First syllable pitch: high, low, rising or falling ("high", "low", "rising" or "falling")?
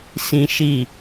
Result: high